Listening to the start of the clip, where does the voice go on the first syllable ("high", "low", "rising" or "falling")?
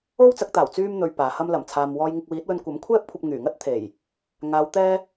high